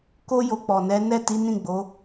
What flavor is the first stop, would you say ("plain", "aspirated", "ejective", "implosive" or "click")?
plain